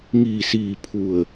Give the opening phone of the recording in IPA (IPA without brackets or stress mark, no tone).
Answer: ŋ